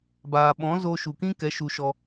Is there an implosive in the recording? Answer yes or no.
yes